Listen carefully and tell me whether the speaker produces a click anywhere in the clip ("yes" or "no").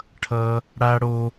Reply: no